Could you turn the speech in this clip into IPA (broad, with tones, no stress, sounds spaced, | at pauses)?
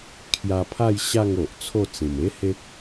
kʰ j a˧ pʰ a˥˧ j ɕ a˥˧ ŋ o˨ ʔ t͡sʰ o˥˧ t͡s ĩ˨˩ m e˦ h e˦ k̚